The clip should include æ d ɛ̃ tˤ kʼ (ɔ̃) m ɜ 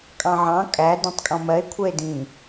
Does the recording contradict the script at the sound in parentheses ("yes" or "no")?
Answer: no